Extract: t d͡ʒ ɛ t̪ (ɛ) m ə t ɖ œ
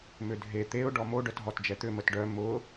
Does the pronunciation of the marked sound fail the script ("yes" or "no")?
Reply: yes